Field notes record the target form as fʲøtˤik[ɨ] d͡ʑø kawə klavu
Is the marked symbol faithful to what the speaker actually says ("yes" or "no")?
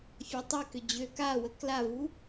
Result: no